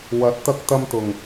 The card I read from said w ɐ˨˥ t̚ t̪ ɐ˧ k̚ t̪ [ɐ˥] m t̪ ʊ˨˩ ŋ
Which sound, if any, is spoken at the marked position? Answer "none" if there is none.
ɐ˧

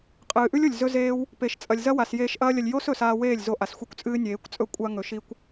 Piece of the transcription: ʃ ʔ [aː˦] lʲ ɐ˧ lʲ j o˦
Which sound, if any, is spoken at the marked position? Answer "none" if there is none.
ɐː˦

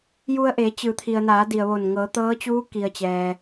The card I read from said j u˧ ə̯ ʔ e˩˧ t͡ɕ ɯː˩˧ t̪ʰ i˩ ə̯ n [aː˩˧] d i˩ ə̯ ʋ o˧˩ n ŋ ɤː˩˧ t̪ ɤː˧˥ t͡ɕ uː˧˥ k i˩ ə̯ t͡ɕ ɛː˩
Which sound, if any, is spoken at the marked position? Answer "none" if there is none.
aː˩˧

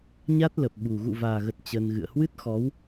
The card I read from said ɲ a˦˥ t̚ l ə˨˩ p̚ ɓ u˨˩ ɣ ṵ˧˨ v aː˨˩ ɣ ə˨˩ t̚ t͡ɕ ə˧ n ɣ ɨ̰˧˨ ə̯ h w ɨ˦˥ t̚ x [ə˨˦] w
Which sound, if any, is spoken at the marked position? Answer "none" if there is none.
ɔ˨˦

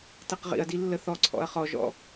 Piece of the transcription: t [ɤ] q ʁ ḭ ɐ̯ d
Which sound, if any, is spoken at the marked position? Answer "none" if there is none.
ɤ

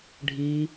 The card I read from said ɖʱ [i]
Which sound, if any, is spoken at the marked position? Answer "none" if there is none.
i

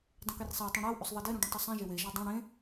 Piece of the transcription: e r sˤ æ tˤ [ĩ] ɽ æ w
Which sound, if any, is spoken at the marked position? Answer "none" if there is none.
ĩ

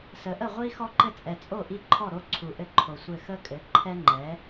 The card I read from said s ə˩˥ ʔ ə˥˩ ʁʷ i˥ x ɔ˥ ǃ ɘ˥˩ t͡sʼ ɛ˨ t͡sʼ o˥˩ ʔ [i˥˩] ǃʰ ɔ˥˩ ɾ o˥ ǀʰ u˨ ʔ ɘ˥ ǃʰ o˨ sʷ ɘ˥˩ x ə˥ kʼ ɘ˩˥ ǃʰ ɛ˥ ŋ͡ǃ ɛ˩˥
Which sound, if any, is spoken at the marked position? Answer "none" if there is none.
i˥˩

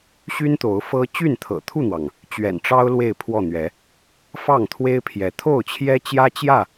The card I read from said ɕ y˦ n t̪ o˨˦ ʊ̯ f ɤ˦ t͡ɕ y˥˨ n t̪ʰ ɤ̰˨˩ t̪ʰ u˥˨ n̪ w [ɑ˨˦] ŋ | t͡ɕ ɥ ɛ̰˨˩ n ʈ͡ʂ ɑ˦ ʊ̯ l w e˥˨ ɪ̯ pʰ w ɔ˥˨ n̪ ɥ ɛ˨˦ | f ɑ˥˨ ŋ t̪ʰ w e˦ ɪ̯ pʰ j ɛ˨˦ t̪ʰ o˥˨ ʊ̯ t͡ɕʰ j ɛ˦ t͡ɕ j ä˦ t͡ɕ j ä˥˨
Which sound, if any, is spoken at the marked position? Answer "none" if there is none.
ɑ˩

